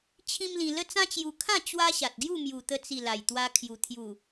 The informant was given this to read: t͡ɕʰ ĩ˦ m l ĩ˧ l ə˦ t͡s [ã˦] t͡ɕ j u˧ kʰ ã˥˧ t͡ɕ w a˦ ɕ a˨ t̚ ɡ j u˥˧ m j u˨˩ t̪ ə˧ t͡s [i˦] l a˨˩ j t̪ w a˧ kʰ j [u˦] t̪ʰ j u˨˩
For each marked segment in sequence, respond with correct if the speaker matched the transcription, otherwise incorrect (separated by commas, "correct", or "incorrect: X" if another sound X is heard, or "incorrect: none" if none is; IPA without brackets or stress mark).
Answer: correct, incorrect: i˨˩, incorrect: u˨˩